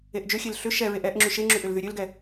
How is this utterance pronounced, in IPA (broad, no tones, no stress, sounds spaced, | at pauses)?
e ʔ d͡ʒ ø xʲ e l ɬ ʏ ʃ ɛ ɹ e ʔ ɛ ʔ ŋ͡ǁ y ʃ e ŋ͡ǁ y ʔ ʏ l ð y ɾʲ ø l ɡ ɛ